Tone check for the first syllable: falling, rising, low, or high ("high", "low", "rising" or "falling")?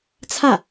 falling